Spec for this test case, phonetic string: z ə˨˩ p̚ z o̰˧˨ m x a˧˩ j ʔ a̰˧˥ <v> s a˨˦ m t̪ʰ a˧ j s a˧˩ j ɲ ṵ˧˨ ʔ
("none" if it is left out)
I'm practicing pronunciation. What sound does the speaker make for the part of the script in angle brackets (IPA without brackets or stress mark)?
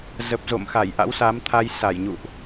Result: w